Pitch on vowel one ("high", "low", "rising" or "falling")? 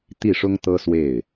falling